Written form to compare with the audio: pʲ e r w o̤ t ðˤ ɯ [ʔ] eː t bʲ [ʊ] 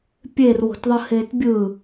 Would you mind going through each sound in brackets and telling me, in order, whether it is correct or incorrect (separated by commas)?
incorrect, incorrect